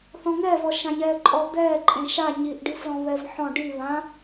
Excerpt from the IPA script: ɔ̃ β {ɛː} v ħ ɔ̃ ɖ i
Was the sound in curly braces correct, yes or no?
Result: no